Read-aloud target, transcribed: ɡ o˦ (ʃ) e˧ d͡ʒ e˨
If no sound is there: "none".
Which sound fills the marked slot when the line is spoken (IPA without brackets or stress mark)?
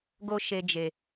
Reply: ʃ